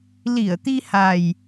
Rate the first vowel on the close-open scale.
close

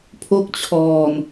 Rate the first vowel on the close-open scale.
mid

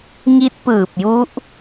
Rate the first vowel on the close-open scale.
close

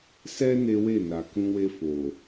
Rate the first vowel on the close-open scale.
mid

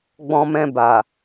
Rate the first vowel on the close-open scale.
mid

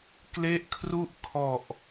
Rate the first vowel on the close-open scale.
mid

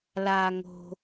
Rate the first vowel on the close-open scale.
open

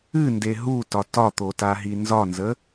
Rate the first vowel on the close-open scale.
close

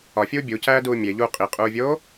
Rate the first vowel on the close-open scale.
open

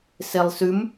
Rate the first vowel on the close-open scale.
mid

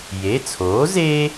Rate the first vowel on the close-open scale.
mid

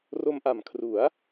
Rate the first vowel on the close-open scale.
mid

